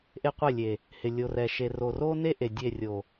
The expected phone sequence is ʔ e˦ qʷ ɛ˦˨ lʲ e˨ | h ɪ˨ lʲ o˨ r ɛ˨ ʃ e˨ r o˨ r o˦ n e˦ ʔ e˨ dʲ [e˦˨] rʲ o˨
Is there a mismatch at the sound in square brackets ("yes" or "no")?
no